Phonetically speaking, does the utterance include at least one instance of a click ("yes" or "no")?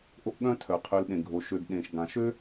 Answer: no